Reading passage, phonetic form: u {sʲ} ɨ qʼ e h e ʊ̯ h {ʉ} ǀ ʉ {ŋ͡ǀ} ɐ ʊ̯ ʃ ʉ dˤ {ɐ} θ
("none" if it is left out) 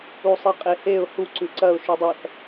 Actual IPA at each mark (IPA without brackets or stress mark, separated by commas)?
sˤ, u, ǀ, ɐ